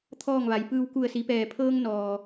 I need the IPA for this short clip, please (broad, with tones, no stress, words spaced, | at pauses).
t̪ʰɔː˥˨ŋʋa˩˧j pɯː˧w ku˧˩ə̯si˩˧pɛː˩pʰɤː˧ŋ nɔː˩